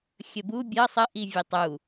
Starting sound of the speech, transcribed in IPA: xʲ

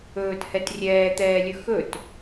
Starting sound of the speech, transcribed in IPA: ɵː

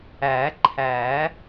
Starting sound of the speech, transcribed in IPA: æː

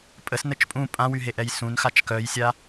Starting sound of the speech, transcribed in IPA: pʼ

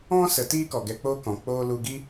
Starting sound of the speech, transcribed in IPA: ɔ̃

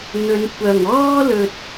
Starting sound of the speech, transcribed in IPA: n̪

